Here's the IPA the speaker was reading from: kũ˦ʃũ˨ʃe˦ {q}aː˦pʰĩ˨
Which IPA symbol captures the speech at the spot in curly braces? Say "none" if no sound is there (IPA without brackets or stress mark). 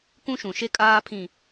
kʼ